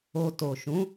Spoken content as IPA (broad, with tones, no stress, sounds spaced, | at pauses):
o˧ t o˨ ʃ ũ˨˦